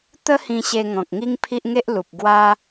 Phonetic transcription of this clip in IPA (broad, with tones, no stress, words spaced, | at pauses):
t̪ə˦ hĩ˧ɕe˧ ŋɔ̃˨k̚ŋi˦ŋpʰi˦ʔ ŋe˦ʔ lu˨p̚ ɡwa˦